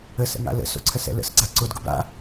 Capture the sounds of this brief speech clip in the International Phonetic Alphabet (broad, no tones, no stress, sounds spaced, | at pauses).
ə s ə̰ ŋ a̰ l ə̰ s o̰ ǀʰ ə s ɛ̰ l ə̰ s ɡ͡ǀ a ǀ ʊ d ɡ ʊ b a̰